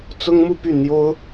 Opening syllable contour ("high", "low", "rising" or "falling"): high